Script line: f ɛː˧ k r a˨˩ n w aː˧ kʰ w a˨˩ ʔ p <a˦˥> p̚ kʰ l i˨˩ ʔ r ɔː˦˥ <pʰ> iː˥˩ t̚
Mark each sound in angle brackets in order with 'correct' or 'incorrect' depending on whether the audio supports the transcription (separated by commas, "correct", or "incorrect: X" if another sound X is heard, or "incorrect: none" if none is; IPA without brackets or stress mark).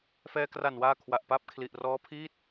correct, correct